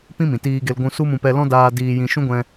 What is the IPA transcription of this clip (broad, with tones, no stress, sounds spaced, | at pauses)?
p ĩ˦ m ĩ˨ t iː˧ ɡ e˧ l ɡʷ ũ˧ s u˦ m ũ˧ p ɛ˧ l ɔ̃˦ d aː˧ d iː˧ j ĩ˧ ʃ ũ˦ ɡʷ ɛ̃˧